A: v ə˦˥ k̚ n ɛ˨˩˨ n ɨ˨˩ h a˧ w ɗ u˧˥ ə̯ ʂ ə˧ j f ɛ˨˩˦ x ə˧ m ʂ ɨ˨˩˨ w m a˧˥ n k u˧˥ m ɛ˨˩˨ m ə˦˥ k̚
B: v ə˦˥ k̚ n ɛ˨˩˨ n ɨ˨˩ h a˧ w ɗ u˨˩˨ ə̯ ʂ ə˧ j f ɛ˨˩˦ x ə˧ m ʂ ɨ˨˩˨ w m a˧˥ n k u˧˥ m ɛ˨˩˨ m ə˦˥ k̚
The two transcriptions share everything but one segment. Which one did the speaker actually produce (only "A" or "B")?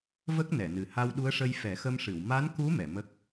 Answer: A